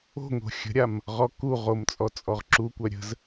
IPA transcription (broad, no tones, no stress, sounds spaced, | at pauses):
o̤ ŋ o̤ xʲ ə̤ ɾʲ a m | ʁ ɔ k u ʁ o m t͡sʼ ɔ t͡sʼ ɔ ʁ ǁ u kʷ œ ɾʲ ə̤ z